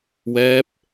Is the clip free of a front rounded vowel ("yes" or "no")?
yes